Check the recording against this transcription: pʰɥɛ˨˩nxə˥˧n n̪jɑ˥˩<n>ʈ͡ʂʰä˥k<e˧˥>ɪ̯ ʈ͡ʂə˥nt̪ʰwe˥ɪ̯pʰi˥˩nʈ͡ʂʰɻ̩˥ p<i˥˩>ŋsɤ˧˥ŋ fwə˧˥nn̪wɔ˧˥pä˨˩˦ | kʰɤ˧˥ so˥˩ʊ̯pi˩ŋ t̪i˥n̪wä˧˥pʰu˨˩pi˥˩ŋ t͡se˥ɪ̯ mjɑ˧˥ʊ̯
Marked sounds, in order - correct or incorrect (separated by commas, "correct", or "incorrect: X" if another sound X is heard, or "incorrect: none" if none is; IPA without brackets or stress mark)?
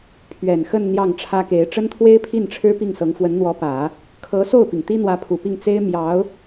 incorrect: ŋ, correct, correct